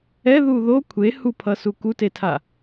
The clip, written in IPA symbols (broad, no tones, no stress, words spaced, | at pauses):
ɛðu ðo kʷʰe hupʰʌsu kutetʰa